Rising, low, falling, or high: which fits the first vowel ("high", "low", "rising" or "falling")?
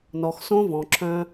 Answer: low